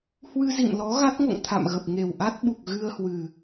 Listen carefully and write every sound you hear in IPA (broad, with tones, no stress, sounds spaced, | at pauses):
h w ɨ˧ z ḭ˧˨ m l ɔ˨˦ ɣ a˦˥ t̚ ŋ o̰˧˨ ŋ t̪ʰ a̰˧˨ m ɣ ə˨˩ p̚ ŋ e˨˩ w ʔ a˦˥ t̚ ɓ u˨˩ k̚ ɣ ɨ˧ ə̯ h w ɨ˨˩